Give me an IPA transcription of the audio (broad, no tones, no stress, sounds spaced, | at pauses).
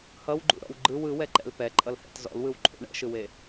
h ʌ w ɡ͡ǃ ṵ ɾ ɔ̰ w ɡ͡ǃ ɯ w ɯ w ɛ ǃ ɛ̰ l p ɛ ǃʼ ʌ l h ɛ̰ t z ɔ̰ l w ɯ w ǃʰ ṵ ɳ ɛ̰ ʃ ɯ w e